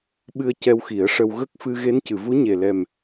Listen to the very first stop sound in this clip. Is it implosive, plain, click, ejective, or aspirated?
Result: implosive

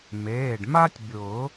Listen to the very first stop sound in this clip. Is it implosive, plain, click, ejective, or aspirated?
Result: plain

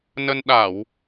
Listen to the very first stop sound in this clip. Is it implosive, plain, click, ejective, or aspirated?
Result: implosive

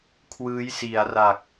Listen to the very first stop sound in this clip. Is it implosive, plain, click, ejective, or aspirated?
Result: aspirated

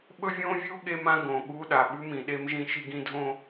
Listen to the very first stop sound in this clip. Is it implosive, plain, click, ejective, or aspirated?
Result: implosive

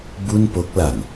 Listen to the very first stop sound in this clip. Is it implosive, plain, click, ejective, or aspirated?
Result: plain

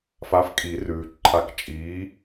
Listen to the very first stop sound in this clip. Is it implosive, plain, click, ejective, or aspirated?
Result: ejective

